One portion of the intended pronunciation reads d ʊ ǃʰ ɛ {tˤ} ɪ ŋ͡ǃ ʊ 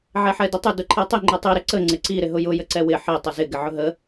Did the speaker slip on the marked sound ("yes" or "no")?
no